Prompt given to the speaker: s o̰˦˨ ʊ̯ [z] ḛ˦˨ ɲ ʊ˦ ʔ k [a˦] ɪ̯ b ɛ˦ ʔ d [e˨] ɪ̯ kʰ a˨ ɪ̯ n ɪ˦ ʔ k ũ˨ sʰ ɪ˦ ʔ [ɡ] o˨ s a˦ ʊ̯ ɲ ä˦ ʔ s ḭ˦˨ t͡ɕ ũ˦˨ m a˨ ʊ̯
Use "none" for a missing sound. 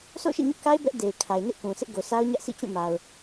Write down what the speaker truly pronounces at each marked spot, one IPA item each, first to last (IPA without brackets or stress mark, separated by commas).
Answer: ʃ, a˦, e˨, ɡ